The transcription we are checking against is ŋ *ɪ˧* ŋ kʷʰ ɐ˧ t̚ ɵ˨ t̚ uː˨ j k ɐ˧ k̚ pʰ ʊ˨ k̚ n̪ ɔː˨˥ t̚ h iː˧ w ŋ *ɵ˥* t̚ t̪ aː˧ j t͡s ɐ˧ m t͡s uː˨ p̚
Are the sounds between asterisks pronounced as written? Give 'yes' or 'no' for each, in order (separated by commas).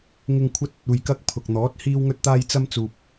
yes, no